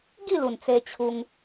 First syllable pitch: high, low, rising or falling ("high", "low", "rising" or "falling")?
falling